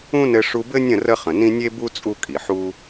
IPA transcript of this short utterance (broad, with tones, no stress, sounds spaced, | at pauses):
ũ˦ n ɘ˧ ʂ u˧ b ɘ˦ nʲ ə̃˦˨ r ə˦ χ ə̃˨ n ĩ˦ nʲ e˦ b u˦ t͡sʼ u˦ kʼ i˨ ħ u˦